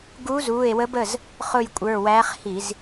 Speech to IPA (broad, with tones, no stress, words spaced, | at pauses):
ɡuː˧˥zuː˩˧˩e̯wə˧˥b ə˩˧˩z | χʊ˦˨jkʷʼə˞˩˧˩wæː˧˥χ hi˧˩˧z